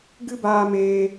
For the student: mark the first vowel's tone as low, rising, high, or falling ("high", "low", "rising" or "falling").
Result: high